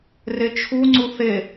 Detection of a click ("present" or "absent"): present